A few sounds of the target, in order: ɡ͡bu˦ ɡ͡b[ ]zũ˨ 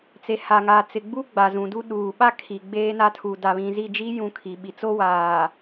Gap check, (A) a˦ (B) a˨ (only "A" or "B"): B